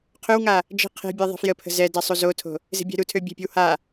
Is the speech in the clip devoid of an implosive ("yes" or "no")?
yes